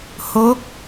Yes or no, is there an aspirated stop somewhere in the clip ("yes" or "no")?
no